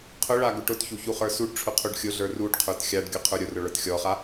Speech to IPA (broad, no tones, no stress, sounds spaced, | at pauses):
qʰ ʊ ɭ a ɡ ʊ ʈ ʊ t ç u ç u χ ə˞ s u ɖ ʈ͡ʂʰ ʊ qʰ u ɖ xʲ ʊ ɮ ə˞ r u ɖ qʰ ə˞ t xʲ a ɖ ɡʲ ʊ qʰ ə˞ ɾʲ ʊ r ʊ ɭ ə˞ t xʲ ɔ χ a